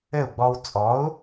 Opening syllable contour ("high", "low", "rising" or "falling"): falling